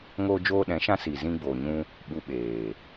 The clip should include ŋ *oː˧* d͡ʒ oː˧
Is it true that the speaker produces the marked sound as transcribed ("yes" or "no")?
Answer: yes